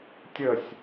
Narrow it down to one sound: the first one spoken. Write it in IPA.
tʲ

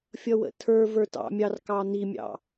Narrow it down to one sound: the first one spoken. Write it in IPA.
fʲ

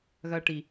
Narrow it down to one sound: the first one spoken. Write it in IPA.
ɣ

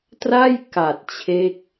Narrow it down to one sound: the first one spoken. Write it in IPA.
t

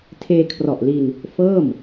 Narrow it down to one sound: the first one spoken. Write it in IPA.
tʰ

